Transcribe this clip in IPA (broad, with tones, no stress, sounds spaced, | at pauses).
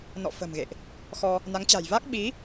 n ɔ̰˧˨ f ə̤˨˩ m ɣ ḛ˧˨ ʔ | x ɔ˧ | n a˨˦ ŋ t͡ɕ a̤˨˩ j v a˦˥ k̚ ɓ i˨˦